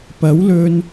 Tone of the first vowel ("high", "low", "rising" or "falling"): rising